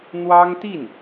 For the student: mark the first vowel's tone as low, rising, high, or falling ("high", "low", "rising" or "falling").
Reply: high